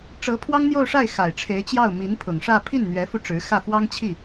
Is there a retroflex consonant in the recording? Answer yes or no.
yes